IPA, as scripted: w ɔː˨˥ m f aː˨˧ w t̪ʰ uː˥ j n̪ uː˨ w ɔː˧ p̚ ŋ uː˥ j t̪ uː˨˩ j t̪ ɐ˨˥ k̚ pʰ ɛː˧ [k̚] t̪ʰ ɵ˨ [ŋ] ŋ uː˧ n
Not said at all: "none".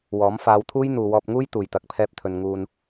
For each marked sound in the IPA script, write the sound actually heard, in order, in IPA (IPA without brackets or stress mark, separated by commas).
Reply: p̚, n